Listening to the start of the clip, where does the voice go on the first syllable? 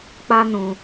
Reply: high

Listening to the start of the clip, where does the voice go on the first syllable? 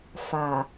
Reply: low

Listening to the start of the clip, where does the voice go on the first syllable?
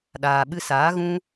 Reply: low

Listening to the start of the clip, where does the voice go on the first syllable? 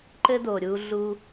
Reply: high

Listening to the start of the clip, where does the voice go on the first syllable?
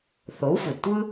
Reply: rising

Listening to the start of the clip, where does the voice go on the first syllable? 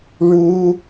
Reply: high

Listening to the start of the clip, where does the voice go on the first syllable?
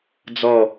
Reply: falling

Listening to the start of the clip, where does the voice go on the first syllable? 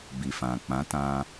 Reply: low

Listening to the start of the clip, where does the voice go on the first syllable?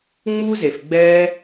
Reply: high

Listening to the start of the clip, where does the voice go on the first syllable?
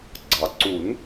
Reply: low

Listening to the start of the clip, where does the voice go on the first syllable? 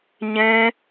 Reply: high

